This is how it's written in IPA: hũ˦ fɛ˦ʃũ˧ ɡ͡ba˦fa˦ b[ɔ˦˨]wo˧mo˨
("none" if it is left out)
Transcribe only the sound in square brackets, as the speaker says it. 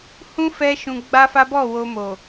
ɔ˦˨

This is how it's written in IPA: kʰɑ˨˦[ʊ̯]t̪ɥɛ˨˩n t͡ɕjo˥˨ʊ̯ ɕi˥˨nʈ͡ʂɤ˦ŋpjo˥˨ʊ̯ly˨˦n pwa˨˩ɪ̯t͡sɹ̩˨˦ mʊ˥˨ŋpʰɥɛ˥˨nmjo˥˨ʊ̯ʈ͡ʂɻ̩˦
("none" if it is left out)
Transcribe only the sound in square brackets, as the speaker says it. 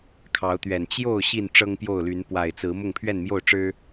ʊ̯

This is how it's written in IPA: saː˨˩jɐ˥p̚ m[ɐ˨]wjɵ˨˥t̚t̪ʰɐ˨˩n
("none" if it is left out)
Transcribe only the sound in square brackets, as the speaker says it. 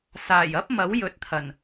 ɐ˨˥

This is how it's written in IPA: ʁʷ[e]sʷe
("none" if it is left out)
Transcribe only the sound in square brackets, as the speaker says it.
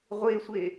e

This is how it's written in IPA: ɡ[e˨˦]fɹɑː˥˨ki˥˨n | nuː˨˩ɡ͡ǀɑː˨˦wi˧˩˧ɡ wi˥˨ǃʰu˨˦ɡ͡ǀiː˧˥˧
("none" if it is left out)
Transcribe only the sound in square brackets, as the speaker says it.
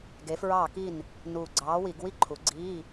e˨˦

